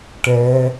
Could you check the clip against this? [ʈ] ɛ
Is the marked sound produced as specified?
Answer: yes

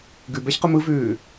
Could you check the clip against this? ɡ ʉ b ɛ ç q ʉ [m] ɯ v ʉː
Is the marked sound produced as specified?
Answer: yes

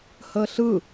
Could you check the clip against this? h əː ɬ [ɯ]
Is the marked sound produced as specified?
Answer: yes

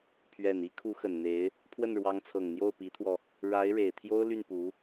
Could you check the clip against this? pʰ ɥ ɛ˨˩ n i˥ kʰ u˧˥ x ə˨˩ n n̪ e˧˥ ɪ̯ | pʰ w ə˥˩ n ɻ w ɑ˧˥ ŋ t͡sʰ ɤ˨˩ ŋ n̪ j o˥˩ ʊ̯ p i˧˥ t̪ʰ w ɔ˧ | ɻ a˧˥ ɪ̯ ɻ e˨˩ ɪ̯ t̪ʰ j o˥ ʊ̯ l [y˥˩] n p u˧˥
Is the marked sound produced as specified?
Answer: yes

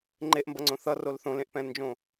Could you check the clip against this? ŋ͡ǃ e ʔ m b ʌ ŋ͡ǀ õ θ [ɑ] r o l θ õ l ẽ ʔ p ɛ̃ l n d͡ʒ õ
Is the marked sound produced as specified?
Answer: no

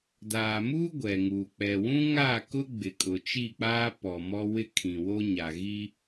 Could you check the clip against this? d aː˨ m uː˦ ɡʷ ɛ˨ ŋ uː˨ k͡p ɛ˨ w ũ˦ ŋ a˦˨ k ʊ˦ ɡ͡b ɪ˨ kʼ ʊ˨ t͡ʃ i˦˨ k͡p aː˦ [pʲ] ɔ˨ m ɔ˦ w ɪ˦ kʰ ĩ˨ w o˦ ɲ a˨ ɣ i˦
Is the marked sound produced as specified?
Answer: no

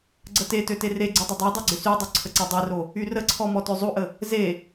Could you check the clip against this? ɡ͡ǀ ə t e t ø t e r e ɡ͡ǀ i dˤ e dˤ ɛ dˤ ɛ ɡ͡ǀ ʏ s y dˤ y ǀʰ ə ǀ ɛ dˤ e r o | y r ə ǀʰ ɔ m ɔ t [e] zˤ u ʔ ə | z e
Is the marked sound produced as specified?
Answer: no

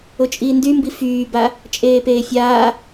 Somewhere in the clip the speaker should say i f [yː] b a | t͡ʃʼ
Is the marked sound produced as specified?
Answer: yes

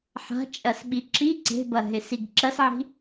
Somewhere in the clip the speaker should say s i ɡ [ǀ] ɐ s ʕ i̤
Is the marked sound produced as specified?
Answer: no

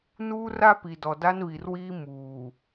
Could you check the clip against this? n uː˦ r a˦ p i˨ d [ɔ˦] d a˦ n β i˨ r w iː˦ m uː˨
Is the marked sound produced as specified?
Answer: no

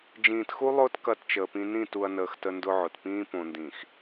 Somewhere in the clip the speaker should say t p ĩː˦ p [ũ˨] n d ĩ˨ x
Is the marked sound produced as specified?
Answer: no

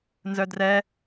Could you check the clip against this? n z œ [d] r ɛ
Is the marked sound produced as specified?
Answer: yes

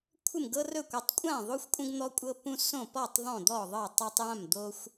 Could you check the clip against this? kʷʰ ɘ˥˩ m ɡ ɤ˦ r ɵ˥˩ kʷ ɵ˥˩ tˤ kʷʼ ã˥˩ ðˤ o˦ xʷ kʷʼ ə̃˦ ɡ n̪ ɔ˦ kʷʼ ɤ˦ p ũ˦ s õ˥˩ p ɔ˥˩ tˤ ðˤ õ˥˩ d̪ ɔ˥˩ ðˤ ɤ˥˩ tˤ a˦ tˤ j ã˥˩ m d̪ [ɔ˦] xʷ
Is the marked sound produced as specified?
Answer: no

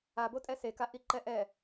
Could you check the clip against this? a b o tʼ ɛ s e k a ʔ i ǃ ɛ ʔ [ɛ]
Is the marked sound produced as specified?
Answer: yes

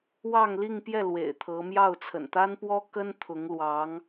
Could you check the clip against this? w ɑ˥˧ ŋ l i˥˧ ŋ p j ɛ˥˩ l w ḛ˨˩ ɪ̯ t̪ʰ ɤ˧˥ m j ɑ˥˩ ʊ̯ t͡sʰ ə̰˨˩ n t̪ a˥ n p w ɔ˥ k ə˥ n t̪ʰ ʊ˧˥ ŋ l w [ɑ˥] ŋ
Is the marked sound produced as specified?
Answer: no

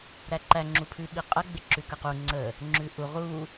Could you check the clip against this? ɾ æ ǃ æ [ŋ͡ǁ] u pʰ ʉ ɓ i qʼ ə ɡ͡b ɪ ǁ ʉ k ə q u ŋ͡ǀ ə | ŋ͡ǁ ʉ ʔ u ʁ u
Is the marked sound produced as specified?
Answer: yes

